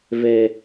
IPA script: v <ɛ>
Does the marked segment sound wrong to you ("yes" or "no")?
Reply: no